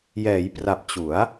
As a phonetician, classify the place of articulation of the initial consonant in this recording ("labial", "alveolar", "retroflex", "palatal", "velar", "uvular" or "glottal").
palatal